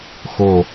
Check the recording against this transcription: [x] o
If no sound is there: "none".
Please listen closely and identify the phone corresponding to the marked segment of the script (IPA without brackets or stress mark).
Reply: x